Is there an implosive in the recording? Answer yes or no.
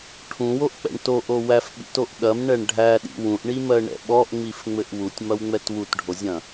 yes